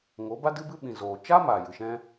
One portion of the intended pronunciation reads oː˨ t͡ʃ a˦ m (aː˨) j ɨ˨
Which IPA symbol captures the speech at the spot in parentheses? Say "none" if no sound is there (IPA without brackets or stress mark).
aː˨